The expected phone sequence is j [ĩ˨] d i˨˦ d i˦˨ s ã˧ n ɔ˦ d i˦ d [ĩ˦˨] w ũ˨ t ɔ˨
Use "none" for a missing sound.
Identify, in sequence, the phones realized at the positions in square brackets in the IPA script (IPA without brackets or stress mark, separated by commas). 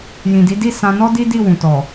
ĩ˨, i˦˨